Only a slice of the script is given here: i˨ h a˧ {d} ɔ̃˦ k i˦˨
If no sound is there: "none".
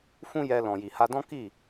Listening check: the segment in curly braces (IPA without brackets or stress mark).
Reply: d